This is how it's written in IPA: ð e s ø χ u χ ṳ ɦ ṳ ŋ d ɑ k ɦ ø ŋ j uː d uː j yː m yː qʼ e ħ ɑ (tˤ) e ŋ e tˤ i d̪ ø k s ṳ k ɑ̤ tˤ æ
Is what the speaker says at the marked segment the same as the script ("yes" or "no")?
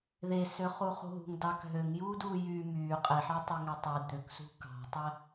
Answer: yes